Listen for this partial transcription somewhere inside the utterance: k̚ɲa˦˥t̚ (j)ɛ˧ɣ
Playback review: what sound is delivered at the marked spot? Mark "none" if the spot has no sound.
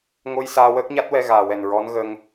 w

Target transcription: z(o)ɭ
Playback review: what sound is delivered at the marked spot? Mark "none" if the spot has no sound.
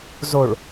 o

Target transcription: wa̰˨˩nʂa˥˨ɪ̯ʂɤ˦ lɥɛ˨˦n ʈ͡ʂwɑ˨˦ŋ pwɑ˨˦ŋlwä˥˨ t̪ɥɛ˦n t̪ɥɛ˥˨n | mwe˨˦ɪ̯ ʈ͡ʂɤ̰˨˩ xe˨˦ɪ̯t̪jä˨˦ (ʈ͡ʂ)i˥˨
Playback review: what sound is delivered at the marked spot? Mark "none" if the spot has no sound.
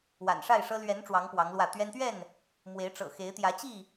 t͡ɕ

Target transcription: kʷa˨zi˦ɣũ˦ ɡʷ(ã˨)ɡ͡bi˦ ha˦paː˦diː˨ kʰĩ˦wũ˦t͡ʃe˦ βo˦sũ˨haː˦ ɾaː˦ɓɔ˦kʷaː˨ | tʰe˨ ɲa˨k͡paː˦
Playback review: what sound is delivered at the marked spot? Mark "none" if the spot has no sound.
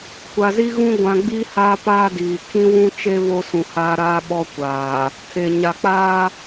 ã˨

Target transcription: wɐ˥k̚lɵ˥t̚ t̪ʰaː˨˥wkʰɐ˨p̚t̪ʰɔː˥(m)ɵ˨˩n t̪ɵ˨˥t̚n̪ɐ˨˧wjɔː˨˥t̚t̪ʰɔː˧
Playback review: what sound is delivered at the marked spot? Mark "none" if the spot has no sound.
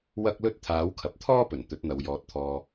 p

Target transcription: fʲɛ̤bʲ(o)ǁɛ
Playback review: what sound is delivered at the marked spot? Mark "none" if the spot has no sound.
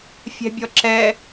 ɔ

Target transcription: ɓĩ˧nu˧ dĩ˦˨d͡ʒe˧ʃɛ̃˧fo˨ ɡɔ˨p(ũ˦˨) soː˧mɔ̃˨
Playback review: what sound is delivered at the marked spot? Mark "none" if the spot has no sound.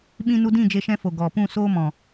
ũ˦˨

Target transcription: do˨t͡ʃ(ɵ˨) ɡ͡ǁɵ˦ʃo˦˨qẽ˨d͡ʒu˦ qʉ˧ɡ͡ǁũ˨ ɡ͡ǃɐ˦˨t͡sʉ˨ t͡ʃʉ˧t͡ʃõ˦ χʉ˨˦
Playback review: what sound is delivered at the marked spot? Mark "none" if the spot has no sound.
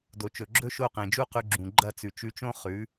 ɵ˨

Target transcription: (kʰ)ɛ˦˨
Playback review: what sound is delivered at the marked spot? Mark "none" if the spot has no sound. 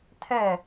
tʰ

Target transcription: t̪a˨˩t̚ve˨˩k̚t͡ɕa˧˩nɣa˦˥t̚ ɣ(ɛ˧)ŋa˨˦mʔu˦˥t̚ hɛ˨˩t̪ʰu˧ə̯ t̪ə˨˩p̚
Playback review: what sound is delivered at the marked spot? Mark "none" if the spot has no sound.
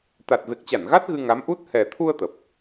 ɨ˧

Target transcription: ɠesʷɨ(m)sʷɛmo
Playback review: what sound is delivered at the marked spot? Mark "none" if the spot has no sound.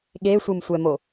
m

